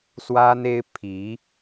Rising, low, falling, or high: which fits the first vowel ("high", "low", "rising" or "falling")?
high